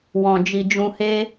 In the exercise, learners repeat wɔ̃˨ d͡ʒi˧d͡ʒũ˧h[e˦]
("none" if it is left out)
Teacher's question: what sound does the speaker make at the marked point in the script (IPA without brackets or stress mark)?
e˦